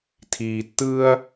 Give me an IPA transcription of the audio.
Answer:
tʰ iː˨ tː ɯː˦ ɐ̯

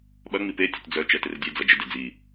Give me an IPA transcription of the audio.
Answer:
ɓ ɐ ŋ͡m i p e tʲ ʊ t d͡z œ t͡ʃ ɛ t ɪ r dʲ e d͡z ɐ d͡ʒ ɪ d e d͡z i

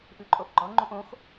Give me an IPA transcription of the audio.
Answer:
ʔ ʉ ǃʼ o ʔ ɡ͡ǃ ɔ ŋ͡ǃ ũ ʔ õ x

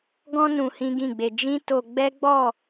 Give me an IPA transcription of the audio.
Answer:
ɡ ɔ̃˦ n ũ˧ h ĩ˦ ɡ ĩ˦˨ ɡ͡b e˧ d͡ʒ ĩ˦ t o˧ ɡ͡b ɛ˦ ɡ͡b ɔ˦˨

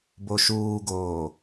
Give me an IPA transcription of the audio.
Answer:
b o ʃ uː ɡ oː

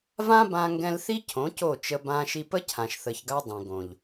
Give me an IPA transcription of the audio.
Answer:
v ã˦ b ã˧ ŋ ɡ ɛ̃˧ l θ i˦ cʰ õ˨˦ c o˦˨ t͡ʃ ə˧ b ã˧ ʃ i˧ p ə˦ cʰ ã˨ ʃ θ ə˨ ç ɡ a˧ dˤ ɛ̃˨ ɡ õ˨ ʎ

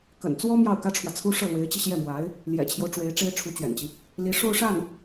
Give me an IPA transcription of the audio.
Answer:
k ə̰˨˩ n t͡s w ɔ˥ m j ɑ˥˩ ʊ̯ k ä˥ ʈ͡ʂʰ w ä˨ t͡sʰ u˥ ʂ ɤ˥˩ l w e˧˥ ɪ̯ t͡ɕ i˧ ɕ j ɛ˥˩ m w a˧˥ ɪ̯ | l j ɛ̰˨˩ t͡ɕʰ j o˦ ʊ̯ ʈ͡ʂ w e˧˥ ɪ̯ ʈ͡ʂ e˥ ɪ̯ ʈ͡ʂʰ u˧˥ t͡ɕ ɥ ɛ̰˨˩ n t͡ɕ i˦ | l i˧˥ ʂ o˥˧ ʊ̯ ʂ a˥˩ n

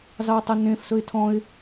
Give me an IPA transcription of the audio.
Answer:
z ɑ tˤ ɛ n ẽ f s ɵ ɪ̯ tʰ ɔ̃ ɪ̯

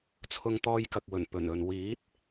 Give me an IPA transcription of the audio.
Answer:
t͡sʰ ʊ˧ ŋ t̪ ɔː˧ j k ɐ˨ k̚ w ɵ˨˩ n p ɵ˨˩ n ɵ˨ n w iː˨˥ t̚

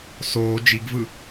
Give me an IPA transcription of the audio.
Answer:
s oː d͡ʒ i ɡ v ɯ

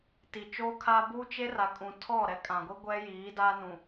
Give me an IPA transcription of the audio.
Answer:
t i˨ t͡ʃ oː˦ kʰ a˦ b uː˦ t͡ʃ e˦ r a˨ kʼ ũ˨ tʰ ɔ˦˨ ɾ ɛ˦ kʼ ã˨ ɡʷ i˦ ɡʷ ɛ˦ j iː˨˦ d a˦ n ũ˨

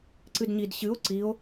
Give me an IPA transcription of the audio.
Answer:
ǀ ɨ d ɲ i d ɕ ɨ o̯ ǀ i o̯

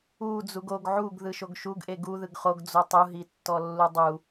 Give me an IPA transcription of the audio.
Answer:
u d͡z u ɡ o ɡ ʕ u ɡ ð ɯ ʃ o ɡ ʃ u ɡ ʔ e ɡ u ð ɯ ɡ χ o ɡ d͡z o tˤ u ɦ i tː ɔ lː u dˤ u

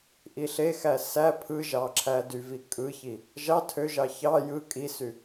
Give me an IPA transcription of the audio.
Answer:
ʔ i ɬ e x æ s æ pʰ ɯ ʒ ɑ ǁʰ æ d y v i kʼ ɯ ç i | ʒ ɑ tʰ ø ʒ ɑ ç ɑ j ɯ kʼ i s y

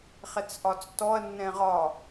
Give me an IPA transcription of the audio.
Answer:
χ ɛ t͡s ʔ ɒ t͡s t ɔ ɐ̯ nː ɛ̃ ʁ ɒ

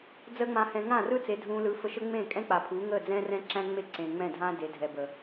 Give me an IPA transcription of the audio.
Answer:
d͡z əː˦ ŋ͡m ã˧ h ɛ̃˧ ŋ ã˦˨ r ɯ˦ t͡s e˨˦ dʱ ũː˧ l ɯ˨˦ f ə˧ ʃ ə˦ ŋ͡m ẽː˦˨ kʼ ɛ̃˦ k͡p a˨ pʰ uː˨˦ ŋ əː˦˨ d͡z ɛ̃ː˦ r ɛ̃˦ ǁ æ̃˦ ŋ͡m e˦ ǀ ẽː˨ ŋ͡m ɛ̃˦˨ dʱ ãː˦ d e˨˦ dʱ ɛ˨ b ə˨

